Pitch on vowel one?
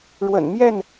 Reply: low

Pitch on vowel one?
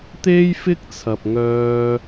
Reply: high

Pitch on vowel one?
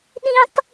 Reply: high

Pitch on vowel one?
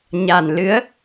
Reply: low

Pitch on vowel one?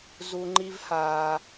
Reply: low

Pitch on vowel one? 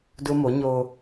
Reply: high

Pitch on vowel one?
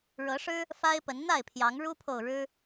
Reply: rising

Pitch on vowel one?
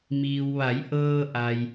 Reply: low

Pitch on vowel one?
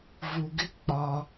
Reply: low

